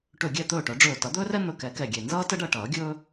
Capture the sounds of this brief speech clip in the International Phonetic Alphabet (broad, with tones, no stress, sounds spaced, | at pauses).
ʈ ɵ˧˩ ɡʲ ɛ˥˩ t̪ ɵː˥˩ ʈ œ˨˩˦ ɖ͡ʐ ɵː˧˩ t ʌ˨˩˦ d̪ ɵː˥ r ɛ˥ n̪ ɵ˧˩ k ɛ˨˩˦ k ɛ˧˩ ɡʲ e˧˩ n z ʌː˥ t ə˥ ɖ ʌ˥˩ ʈ ʌː˨˩˦ ɡʲ ɵː˥